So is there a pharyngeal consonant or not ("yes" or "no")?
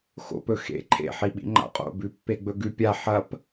yes